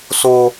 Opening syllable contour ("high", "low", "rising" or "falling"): high